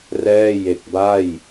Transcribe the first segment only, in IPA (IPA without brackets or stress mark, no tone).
r